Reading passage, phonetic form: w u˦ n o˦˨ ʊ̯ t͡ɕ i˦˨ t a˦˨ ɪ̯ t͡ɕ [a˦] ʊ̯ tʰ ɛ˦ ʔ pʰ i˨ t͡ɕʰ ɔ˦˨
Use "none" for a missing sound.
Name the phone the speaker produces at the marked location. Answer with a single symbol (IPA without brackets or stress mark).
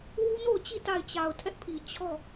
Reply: a˨